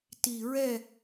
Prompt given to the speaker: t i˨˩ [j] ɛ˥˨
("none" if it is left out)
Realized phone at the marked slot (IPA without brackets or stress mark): ɹ